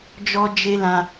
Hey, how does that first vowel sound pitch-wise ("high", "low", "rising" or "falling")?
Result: high